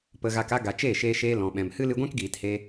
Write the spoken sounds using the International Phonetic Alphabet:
p ə˧ ɣ a˧ k a˧ ɡ a˨ t͡ʃ eː˦˨ ʃ eː˧ ʃ eː˧ l ɔ̃˨ ɓ ɛ̃˨ m h ɨ˦ l ɨ˧ ɡʷ ɛ̃˦ k ɡ iː˨ t h e˧

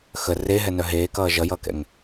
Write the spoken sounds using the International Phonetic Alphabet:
x ə r e ɦ ɛ n œ ɦ eː k ʌː ʒ ʌ j ʌː k ɛ̰ ŋ

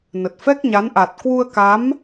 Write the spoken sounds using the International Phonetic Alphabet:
n ə˨˩ t̚ f ɛ˦˥ k̚ ɲ a˨˦ n ʔ a˨˩ t̚ k w u˧ ə̯ k a˨˦ m

